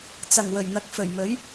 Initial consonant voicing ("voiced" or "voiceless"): voiceless